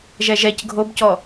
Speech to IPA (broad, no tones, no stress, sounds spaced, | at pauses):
ʒ ɛ ʒ ɛ c ɡʱ o b c ɔ